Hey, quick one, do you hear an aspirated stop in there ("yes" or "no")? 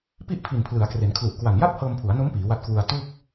yes